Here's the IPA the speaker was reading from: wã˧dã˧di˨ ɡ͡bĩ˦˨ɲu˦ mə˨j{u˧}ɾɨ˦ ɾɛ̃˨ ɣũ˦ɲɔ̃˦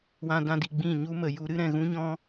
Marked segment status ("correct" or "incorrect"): correct